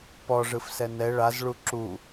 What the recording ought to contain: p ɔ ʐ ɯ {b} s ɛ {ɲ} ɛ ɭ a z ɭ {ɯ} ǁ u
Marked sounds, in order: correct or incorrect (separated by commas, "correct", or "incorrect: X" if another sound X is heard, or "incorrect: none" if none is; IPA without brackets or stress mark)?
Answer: incorrect: f, incorrect: n, incorrect: u